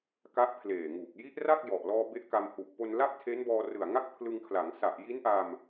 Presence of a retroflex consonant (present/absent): absent